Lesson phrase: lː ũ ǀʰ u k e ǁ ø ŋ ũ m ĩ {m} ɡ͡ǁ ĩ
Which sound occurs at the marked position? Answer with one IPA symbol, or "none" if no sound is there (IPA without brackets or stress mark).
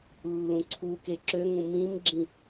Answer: m